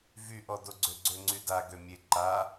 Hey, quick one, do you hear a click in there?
yes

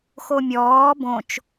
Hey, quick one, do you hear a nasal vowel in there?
yes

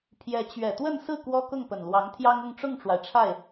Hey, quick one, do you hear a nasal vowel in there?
no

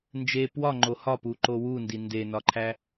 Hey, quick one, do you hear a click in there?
yes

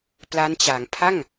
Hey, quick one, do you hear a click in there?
no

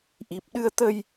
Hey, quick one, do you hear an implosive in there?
yes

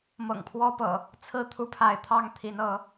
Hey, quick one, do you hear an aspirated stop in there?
yes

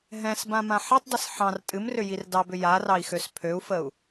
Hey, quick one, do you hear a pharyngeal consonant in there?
yes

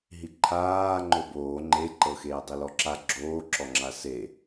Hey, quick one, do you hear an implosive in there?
no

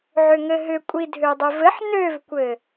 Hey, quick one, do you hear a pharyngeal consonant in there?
yes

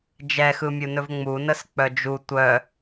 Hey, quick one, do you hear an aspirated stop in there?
no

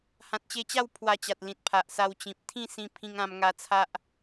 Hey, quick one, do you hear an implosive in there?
no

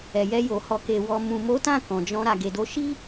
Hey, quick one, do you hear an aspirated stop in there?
no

